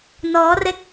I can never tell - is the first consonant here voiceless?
no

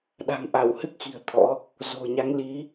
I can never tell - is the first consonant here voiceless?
no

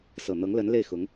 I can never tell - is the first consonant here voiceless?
yes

